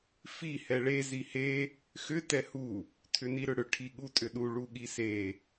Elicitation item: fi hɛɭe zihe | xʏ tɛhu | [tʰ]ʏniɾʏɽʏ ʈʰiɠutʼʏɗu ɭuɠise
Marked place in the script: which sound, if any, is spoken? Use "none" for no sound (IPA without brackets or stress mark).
tʰ